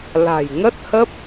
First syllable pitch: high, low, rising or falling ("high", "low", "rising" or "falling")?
low